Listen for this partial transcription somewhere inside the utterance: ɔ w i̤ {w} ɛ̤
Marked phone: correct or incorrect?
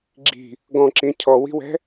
correct